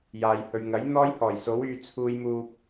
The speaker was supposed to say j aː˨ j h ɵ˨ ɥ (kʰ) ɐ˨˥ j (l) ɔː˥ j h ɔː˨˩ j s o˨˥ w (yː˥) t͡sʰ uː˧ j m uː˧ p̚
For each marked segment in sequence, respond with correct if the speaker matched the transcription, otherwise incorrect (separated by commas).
incorrect, incorrect, incorrect